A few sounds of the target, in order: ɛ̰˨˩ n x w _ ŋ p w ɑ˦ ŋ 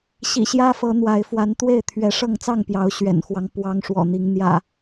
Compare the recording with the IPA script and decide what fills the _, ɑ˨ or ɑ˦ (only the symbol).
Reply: ɑ˦